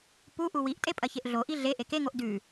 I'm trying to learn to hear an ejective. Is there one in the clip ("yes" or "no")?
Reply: yes